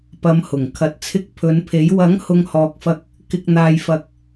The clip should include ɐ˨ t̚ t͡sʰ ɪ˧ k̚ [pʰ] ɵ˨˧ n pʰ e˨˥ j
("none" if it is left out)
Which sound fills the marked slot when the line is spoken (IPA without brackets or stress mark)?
pʰ